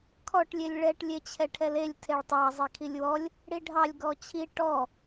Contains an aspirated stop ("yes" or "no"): yes